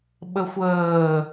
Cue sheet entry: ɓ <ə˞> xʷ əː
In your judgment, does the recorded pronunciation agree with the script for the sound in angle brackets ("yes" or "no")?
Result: no